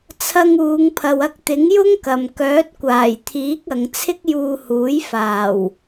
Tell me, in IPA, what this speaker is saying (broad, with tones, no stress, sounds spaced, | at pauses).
t͡sʰ ɐ˧ ŋ uː˨˧ ŋ pʰ ɐ˨ w ɐ˧ k̚ t̪ ɪ˨˥ ŋ j ʊ˥ ŋ k ɐ˨ m k œː˨˥ t̚ kʷ aː˨˩ j t̪ʰ iː˨˥ k̚ ɐ˨˧ ŋ t͡sʰ ɪ˥ k̚ j uː˧ h uː˨˥ j f aː˨˩ w